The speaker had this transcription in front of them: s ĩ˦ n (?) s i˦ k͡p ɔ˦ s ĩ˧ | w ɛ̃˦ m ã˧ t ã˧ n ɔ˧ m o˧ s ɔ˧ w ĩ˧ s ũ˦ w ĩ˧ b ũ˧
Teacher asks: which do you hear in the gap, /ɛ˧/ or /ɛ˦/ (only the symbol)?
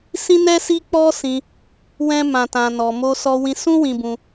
ɛ˦